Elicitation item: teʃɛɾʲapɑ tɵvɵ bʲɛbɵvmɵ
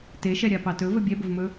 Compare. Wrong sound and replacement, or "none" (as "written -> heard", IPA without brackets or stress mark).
none